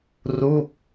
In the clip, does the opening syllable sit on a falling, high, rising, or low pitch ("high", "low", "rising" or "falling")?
falling